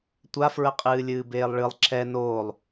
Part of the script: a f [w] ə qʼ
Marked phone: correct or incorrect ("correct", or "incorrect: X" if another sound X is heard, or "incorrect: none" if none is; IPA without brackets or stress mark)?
incorrect: ɹ